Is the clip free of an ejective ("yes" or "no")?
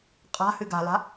no